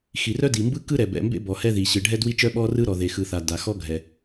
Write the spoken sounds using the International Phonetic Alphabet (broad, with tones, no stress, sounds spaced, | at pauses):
x i˩ r œ˥ d i˩ m b ɯ˥ k ɯ˥ ɾ ɛ˩ b ɛ̰˩ m b ḛ˥ b ɔ˩ h ɛ˥ ð i˩ ɕ ɯ˩ ɖʱ ɛ˥ d w i˥ t͡ʃ œ˥ ɓ ɔ˥ r ɯ˥ ɾ ɔ˩ ð e˩ x ɯ˩ θ a˩ d a˩ x ɔ˥ ɡʱ ɛ˩